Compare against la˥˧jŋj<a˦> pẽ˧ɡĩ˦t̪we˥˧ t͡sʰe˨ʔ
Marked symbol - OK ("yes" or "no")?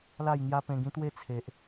yes